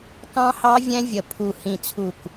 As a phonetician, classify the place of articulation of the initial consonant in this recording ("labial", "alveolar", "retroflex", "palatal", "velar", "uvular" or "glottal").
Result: velar